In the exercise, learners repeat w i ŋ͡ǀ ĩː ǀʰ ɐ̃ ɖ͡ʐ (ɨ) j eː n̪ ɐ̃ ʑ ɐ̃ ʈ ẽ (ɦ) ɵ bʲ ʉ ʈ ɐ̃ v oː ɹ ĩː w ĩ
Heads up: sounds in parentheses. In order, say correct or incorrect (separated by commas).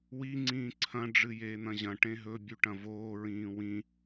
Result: correct, correct